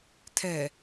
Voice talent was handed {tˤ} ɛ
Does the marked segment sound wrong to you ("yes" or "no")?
yes